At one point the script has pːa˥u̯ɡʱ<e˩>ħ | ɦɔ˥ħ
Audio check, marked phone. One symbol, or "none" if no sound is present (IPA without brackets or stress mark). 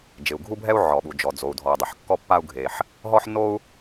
e˩